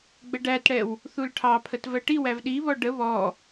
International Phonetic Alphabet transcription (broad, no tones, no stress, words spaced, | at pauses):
ɡ͡bəɖætɽɛw | θulʈʰɑpʰət vɜʈiwæv ɗiβɔ ɖə βɔ